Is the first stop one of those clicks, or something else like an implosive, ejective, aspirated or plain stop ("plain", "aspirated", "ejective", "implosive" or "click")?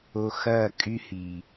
ejective